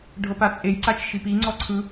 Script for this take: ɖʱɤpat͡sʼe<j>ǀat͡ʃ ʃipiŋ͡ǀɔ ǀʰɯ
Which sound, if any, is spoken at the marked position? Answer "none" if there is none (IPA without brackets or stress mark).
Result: j